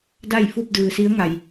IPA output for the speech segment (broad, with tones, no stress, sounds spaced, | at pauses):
d a˥˨ j f u˥˨ p̚ d ɯː˩ s i˧˥ ə̯ ŋ a˩ j